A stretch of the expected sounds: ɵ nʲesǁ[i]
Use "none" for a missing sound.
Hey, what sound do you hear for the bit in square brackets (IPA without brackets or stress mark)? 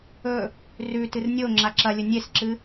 ɨ